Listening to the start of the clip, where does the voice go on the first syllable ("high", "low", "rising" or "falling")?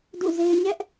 falling